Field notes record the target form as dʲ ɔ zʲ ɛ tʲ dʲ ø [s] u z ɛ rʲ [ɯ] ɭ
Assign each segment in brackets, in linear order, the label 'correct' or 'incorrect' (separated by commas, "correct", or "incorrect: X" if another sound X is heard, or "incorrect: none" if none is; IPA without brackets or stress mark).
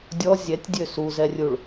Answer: correct, incorrect: u